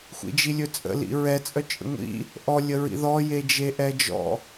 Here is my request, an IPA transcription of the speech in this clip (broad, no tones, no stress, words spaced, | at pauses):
xʷḭd͡ʒilʲɵt͡sʼə̰ lḭɹɛ t͡sʼœt͡ʃʼə̰ŋʷḭ | ʔɔ lʲəɹḭðɔ jed͡ʒeʔɛd͡ʒɔ̰